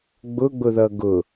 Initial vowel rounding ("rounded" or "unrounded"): rounded